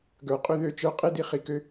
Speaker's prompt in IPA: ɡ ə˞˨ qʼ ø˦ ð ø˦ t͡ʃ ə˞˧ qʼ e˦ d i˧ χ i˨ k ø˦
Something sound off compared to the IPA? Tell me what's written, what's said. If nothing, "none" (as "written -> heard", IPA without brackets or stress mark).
none